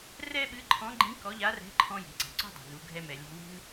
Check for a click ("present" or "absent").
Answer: present